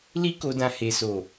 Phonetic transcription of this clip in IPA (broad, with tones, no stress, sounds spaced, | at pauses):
l i˦ k o˧ d ã˧ h e˨ s o˨